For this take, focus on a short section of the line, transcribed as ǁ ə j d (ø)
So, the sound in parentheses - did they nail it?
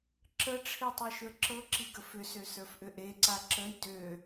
yes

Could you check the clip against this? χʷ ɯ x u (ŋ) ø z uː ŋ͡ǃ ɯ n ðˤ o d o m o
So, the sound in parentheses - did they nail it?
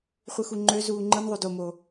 no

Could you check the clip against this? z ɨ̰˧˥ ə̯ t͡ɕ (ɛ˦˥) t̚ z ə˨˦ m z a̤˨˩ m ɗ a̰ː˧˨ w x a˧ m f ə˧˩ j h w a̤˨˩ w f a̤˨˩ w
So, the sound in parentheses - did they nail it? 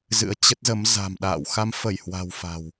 no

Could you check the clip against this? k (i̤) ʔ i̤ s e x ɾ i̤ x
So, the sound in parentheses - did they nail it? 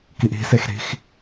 no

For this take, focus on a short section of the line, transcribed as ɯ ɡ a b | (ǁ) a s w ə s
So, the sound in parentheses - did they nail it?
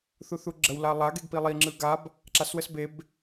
yes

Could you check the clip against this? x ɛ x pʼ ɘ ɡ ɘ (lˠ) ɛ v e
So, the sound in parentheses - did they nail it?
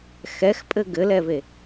no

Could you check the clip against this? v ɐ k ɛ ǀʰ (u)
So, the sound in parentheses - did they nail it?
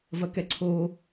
no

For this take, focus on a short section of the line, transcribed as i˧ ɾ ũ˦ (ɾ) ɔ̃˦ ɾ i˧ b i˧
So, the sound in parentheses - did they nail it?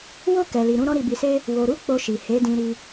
yes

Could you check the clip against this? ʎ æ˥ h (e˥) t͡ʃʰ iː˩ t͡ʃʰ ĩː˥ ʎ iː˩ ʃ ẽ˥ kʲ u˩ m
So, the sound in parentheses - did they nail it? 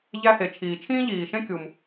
no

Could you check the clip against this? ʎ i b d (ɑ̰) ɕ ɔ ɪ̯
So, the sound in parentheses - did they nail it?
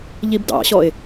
yes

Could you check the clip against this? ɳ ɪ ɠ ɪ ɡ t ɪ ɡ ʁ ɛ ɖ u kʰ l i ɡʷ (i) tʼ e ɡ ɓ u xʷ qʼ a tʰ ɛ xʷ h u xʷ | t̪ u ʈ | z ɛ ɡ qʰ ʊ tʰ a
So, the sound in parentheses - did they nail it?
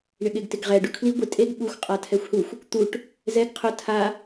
no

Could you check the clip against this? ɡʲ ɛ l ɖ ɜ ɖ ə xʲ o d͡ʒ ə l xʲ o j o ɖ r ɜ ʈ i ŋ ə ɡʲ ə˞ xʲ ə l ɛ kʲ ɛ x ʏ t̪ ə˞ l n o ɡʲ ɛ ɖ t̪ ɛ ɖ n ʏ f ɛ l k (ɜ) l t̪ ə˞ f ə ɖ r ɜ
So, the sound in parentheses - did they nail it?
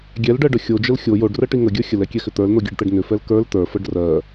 no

